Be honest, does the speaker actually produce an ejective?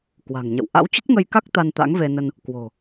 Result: no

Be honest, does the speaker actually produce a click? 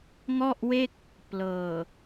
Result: no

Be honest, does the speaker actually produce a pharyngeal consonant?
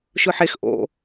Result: yes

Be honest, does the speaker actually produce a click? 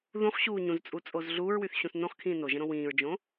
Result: no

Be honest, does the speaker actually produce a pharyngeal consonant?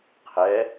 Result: no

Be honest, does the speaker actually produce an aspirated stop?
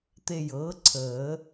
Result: yes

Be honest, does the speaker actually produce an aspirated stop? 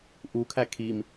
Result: yes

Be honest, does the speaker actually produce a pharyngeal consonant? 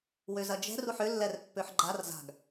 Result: yes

